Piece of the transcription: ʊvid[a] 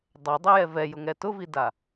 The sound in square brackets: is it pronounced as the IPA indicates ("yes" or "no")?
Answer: yes